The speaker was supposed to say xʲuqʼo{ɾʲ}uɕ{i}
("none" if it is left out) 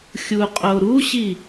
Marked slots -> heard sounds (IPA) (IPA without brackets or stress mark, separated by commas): ɾ, i